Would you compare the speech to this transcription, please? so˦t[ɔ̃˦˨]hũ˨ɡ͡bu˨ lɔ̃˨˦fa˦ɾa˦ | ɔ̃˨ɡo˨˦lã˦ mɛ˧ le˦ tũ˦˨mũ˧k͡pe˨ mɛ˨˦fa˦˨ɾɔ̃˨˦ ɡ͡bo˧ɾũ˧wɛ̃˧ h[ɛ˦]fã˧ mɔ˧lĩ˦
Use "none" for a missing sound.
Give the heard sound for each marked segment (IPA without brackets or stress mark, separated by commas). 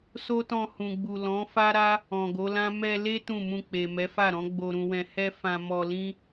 ɔ̃˧, ɛ˦